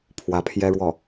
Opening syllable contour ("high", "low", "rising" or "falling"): rising